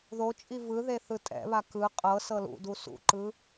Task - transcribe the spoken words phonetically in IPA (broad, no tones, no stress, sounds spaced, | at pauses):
ð o t͡ʃʼ i v ɯ ð e θ ɯ tʼ ɛ̰ β a k ɯ qʼ ɤ s ɤ l ṵ d u s ṵ ǃ ɯ